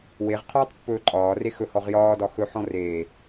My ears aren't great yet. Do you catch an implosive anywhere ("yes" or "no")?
no